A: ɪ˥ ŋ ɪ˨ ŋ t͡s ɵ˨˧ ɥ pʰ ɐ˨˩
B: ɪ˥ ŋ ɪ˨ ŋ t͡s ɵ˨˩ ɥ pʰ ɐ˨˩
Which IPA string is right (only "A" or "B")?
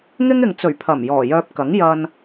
B